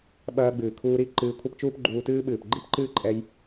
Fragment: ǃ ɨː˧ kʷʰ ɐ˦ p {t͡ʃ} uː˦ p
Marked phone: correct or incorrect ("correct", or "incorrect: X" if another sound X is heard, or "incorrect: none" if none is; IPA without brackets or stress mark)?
correct